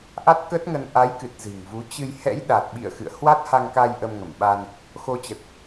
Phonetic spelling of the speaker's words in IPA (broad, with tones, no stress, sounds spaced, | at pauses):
ʔ a˦˥ t̚ k ə˦˥ t̚ ŋ ə˧ n ʔ a˨˦ j k ɨ˨˩ t̚ z ɨ̤˨˩ ŋ v u˨˦ t͡ɕ ɨ˧ j h ɛ̰˧˥ j ɗ a˨˩ t̚ ɓ ḭ˧˨ ə̯ x ɨ̰˧˨ ə̯ h w a˦˥ t̚ h a˧ ŋ k a˧ j ʔ ə˧ m ŋ ə˧˩ m ɓ a˧ n | x o˧ t͡ɕ ə˨˩ t̚